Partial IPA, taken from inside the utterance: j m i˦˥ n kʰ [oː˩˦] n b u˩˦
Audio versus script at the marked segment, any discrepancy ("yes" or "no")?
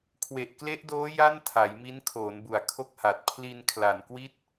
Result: no